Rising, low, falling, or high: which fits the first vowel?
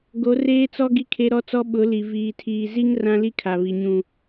rising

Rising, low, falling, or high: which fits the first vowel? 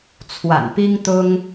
low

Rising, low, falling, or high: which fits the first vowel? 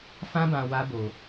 high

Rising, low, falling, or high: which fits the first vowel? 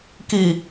low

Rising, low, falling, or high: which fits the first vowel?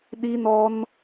high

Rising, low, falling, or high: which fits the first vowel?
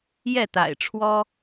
falling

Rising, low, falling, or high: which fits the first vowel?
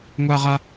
high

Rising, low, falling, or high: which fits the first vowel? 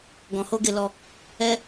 low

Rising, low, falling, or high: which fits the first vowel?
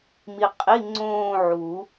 low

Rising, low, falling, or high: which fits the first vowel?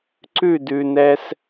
falling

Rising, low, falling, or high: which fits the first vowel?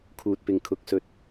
low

